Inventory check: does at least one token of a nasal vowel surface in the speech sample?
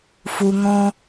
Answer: yes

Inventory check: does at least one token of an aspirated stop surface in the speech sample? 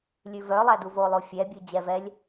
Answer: no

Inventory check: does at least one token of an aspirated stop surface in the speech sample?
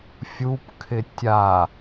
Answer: yes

